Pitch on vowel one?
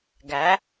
rising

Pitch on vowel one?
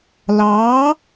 rising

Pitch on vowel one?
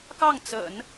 falling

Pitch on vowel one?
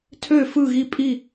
falling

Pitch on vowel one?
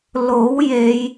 rising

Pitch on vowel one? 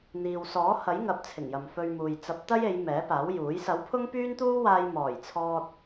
low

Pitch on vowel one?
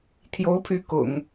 rising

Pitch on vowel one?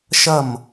falling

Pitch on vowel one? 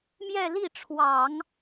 falling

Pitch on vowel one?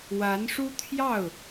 rising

